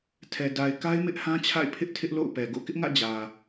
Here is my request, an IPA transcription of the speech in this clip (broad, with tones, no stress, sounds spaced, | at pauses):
tʰ ɛ˨ d a˨ ɪ̯ k a˦ ɪ̯ m ɪ˦ ʔ h ã˦ t͡ɕʰ a̰˦˨ ɪ̯ pʰ ɪ˦ ʔ tʰ ɪ˦ ʔ l o̰˦˨ ʊ̯ p ɛ˨ ɡ o̰˦˨ k ɪ˦ ʔ ŋ ä̰˦˨ d͡ʑ ä˨